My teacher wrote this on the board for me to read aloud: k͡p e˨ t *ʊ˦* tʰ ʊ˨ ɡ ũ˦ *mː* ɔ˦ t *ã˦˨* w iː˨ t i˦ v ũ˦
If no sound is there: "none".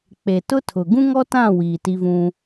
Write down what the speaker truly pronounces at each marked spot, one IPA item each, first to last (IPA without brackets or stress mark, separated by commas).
ʊ˦, ŋ, ã˦˨